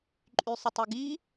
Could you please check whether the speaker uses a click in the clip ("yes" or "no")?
yes